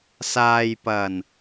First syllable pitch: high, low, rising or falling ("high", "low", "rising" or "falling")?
low